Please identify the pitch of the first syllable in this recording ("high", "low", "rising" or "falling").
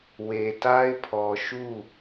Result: low